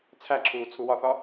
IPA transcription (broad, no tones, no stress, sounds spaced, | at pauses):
t͡sʰ æ ǁʰ uː t͡sʰ u w ɒ θ ɒ